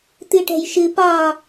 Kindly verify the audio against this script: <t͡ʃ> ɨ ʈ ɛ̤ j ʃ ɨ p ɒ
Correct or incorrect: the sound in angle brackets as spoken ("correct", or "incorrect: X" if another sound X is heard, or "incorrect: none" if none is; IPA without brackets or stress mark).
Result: incorrect: t̪